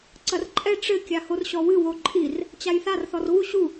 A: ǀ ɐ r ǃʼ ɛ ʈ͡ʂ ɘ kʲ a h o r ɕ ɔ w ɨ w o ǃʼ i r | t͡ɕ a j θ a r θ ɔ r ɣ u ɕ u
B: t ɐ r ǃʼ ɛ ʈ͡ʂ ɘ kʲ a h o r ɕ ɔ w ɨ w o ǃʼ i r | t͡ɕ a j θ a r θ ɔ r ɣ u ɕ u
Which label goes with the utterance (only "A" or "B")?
A